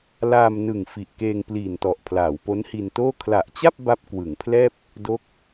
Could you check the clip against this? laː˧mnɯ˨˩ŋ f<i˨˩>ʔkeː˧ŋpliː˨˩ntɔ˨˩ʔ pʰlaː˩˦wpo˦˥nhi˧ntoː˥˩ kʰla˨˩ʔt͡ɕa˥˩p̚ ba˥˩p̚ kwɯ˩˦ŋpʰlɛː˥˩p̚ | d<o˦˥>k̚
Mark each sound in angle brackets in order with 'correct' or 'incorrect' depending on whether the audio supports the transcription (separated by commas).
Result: correct, correct